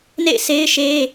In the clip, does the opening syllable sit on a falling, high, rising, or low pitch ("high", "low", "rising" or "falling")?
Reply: falling